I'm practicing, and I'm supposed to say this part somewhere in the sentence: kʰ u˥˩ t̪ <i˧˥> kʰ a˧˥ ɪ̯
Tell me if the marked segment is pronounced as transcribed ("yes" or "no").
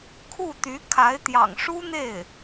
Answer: no